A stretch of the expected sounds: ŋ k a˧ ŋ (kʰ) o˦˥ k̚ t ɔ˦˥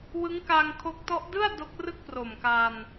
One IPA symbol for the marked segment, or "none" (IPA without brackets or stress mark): kʰ